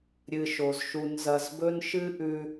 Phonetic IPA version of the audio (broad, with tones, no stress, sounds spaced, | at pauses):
ɾʲ ɨ˨ ʃ o˩ z ʃ u˨ n z ɐ˨ z b ɵ˦ n ʃ ɨ˦ ʔ ʉ˨